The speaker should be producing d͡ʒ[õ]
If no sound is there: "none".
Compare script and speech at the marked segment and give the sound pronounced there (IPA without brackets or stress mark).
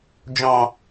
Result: ɔ̃